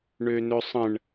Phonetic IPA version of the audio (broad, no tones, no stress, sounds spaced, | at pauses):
ɳ ø n ɵ sˤ ə̃ ɳ